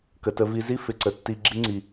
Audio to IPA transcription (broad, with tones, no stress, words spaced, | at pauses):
kə˨tə˧vi˧ zi˦ fɪ˨ǀə˨tːi˧ ɡ͡ǁi˦ŋ͡ǀi˨